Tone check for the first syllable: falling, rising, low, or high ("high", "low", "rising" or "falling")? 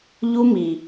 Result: high